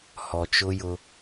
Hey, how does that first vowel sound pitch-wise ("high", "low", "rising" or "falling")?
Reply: low